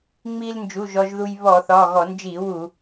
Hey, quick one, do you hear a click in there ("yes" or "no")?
no